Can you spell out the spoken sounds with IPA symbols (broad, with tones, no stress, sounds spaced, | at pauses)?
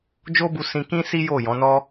d͡ʒ o˦ b u˧ s ĩ˧ k ĩ˦ s i˦ j o˦˨ j ɔ̃˨˦ n ɔ˦